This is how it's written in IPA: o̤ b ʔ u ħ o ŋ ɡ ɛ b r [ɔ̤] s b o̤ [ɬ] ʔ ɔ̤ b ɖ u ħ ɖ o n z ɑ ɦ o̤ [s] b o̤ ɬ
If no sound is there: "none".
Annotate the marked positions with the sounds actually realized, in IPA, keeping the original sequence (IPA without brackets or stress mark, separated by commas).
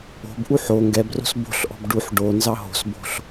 o̤, ɬ, s